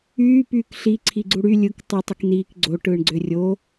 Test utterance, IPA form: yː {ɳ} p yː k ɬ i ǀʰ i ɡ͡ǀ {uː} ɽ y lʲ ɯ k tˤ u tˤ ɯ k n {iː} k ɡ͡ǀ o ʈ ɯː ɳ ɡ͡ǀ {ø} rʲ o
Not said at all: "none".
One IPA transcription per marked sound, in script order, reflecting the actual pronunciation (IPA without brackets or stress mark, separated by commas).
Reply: none, u, iː, ø